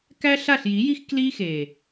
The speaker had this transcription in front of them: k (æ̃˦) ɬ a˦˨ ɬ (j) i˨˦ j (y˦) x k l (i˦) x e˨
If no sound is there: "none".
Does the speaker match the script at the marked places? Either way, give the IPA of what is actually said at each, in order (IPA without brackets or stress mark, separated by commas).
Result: æ˦, j, i˦, i˦